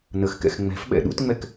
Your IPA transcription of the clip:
n ə x k ɛ̰ x ŋ͡m ɛ̤ f ɓ ɛ̰ ɗ ṵ t ŋ͡m ɛ k

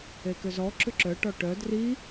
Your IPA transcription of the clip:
e k ʏ z ɔ ǁ ʏ ǁ œ ʈ ɔ ʈ œ d r i

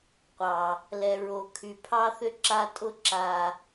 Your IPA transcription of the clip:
qʷ ɑ˨ | l ɛ˨ ɹ o˨ kʰ y˨ pʰ ɑ˦ θ ʏ˦ ǁ a˦ tʼ ʊ˦ ǁ a˨

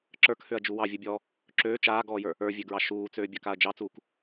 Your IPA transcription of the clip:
ǁ ə˞ k h ø ɐ̯ d͡ʒ u w ɑ vʲ ɯ bʲ ɔː | ǁ øː t͡ʃ aː ɡ ɔː j ə˞ | ə˞ vʲ ø ɡ ɹ ɑ ʃ uː t͡s øː bʲ ɑ k a ɐ̯ d͡ʒ ɑ t͡s uː k

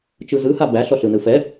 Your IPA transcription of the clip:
t͡ʃ ɯ z ɯ h a b æ ɬ ɔ ɬ ɯ n ɯ f ɛ

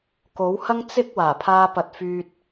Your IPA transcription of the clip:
k o˨˥ w h ɐ˥ ŋ t͡s ɪ˥ k̚ w aː˨˩ pʰ aː˧ p ɐ˨˥ t̚ f yː˧ t̚

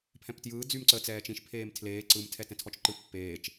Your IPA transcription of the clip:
pʰ ɛ̃ p t j ɯː d͡z y m ǀ ə t͡s ɛː t͡ʃ ĩ ʃ pʰ eː m tʰ l eː ǀ ɯ m tʰ ɛ t ɛ̃ tʰ ɔ t͡ʃ ǃ ɯ pː eː t͡ʃ

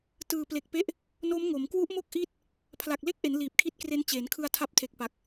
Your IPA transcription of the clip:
t ɯː˨˩ p l e˨˩ k̚ p e˦˥ ʔ | n o˦˥ m ŋ o˩˦ m k w u˦˥ ʔ m o˥˩ k̚ ʔ i˦˥ t̚ | pʰ l a˨˩ k̚ l e˥˩ k̚ ʔ e˩˦ n l iː˨˩ p̚ kʰ i˦˥ t̚ k r e˦˥ n t͡ɕ eː˩˦ n kʰ ɯ˧ a̯ tʰ a˦˥ p̚ tʰ e˨˩ k̚ p a˨˩ k̚

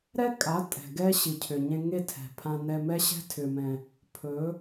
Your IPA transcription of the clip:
ɾ ɛ˦ kʼ a˨˦ tʼ ɛ̤˨ ɡ ɛ˦ ɕ i˨ cʰ ʏ˨ ɲ ẽ˧ ŋ e˦ tʰ ɛ̤˨ pʰ ã˧ n ɛ˧ m ɛ˦ ɕ ɛ̤˦ tʰ ʏ˨ m ɛ̃˨ | pʰ ɵ˨˦

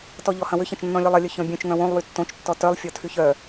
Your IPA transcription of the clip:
t ɔ ʎ ɔ h ɐ̃ w ʏ ç ɐ̃ t͡ʃ nː ɔ̃ lʲ ɔ lˠ ɐ lʲ œ ç ɔ̃ bʲ œ̃ t͡ʃ ŋ œ̃ w õ lˠ w y tː õ t͡ʃ tː ɔ t œ lˠ fʲ ɔ tʰ y ç œ

